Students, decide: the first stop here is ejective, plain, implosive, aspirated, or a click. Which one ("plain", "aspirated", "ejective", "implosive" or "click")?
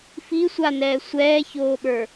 implosive